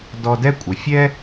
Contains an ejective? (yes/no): yes